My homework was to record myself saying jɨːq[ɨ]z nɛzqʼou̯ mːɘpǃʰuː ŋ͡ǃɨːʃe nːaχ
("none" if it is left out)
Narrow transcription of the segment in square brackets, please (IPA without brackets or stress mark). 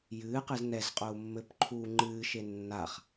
ɨ